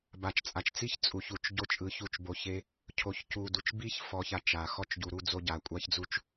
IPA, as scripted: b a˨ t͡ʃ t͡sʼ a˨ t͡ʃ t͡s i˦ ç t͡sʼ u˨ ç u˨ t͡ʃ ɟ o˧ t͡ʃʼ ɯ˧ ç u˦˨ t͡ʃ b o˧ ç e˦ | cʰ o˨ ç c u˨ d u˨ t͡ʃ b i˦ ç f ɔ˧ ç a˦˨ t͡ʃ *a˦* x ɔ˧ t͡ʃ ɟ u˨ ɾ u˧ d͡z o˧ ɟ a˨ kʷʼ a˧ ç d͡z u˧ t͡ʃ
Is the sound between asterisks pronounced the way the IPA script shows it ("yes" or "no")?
no